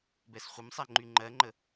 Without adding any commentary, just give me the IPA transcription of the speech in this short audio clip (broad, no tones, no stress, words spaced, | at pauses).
bɛsχʷəmsˤɛ ŋ͡ǃyŋ͡ǃɜŋ͡ǃə